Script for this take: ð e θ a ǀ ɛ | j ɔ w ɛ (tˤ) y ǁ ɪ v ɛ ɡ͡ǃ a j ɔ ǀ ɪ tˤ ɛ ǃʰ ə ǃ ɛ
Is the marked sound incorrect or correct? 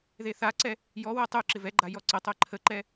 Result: correct